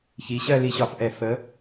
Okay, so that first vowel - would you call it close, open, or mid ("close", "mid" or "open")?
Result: close